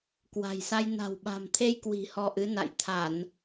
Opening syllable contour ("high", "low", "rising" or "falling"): low